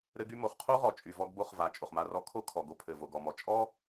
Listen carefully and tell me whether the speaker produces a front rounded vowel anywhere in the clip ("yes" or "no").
yes